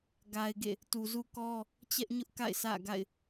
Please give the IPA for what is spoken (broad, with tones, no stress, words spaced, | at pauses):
ɡa˨ɪ̯ɡḛ˦˨ | tu˨zu˦kɔ˦ | t͡ɕɛ˦ʔɲʊ˦ʔ ka̰˦˨ɪ̯sä̰˦˨ɡa̰˦˨ɪ̯